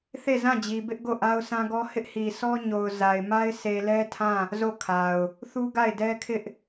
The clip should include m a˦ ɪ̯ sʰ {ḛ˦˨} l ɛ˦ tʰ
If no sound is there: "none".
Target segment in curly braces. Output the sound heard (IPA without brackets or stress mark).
e˨